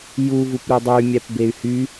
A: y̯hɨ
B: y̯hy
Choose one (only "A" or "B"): B